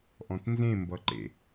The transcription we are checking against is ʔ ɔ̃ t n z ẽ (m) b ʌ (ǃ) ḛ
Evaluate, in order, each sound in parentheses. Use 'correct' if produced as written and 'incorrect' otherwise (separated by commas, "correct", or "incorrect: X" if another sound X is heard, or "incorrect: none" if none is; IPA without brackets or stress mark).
correct, correct